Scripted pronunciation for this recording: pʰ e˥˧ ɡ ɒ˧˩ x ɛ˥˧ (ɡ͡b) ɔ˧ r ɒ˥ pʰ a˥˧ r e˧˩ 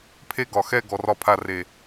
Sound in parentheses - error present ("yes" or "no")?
yes